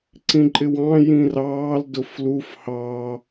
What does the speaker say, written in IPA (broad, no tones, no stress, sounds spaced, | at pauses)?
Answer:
ǀ ĩ ǃʼ ɪ w ɑ̃ j ĩ r ɑː l d ʊ f l u f h ɑ